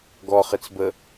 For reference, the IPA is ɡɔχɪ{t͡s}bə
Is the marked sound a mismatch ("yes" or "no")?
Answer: no